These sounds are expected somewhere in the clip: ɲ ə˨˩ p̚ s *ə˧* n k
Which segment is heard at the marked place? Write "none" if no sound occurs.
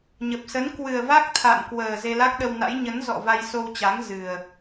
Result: ə˨˦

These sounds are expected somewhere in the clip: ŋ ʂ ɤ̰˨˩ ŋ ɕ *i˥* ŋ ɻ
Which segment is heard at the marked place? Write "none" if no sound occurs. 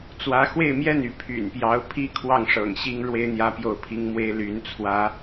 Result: i˥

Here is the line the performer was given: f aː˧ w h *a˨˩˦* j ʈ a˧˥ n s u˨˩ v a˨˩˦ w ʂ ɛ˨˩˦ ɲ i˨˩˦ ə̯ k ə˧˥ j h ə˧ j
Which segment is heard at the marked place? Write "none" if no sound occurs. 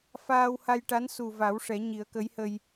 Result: a˧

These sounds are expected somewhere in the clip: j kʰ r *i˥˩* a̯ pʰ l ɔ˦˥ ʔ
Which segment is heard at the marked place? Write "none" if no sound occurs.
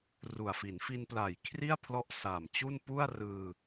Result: i˥˩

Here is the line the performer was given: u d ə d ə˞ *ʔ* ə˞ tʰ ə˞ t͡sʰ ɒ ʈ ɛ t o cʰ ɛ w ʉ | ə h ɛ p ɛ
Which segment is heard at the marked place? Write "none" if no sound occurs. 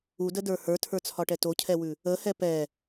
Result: h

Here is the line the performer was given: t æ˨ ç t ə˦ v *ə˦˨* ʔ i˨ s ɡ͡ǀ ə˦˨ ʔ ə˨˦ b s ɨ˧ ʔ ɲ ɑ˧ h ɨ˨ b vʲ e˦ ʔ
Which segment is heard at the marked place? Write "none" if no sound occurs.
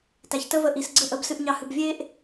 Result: ə˧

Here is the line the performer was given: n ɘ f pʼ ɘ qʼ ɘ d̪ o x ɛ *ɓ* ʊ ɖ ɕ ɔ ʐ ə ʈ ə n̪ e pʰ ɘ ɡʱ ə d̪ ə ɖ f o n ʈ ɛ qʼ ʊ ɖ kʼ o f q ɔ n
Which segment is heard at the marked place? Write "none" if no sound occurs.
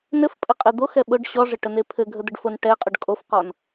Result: ɓ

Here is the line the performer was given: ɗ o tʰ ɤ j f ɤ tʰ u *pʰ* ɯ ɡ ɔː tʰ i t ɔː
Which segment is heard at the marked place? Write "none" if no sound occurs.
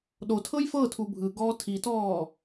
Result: bʱ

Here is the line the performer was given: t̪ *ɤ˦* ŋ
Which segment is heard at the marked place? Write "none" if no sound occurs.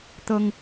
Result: ɤ˦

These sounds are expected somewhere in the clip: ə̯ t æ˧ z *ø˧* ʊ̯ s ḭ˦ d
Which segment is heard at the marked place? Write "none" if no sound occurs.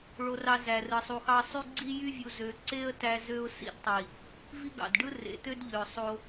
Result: ø˧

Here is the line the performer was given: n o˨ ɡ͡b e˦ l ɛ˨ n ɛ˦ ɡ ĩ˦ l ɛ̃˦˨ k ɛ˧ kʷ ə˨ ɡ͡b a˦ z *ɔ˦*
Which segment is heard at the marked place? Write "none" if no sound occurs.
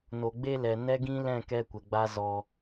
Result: ɔ˧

